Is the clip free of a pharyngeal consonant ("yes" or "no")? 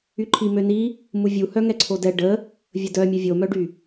yes